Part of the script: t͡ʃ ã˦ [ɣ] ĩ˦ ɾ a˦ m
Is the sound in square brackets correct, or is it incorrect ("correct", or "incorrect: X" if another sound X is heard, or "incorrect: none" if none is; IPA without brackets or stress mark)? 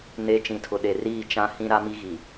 incorrect: h